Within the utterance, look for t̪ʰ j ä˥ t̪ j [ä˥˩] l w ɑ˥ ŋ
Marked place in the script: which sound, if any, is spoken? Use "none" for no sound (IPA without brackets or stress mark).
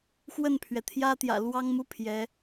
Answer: ä̰˨˩